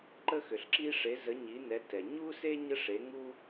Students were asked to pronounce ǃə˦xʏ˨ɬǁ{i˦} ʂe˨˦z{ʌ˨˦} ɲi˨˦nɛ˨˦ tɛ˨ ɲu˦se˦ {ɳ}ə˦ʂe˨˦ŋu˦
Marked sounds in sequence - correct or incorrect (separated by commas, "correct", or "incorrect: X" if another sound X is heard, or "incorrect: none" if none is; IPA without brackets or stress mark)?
correct, incorrect: ə˨˦, incorrect: ɲ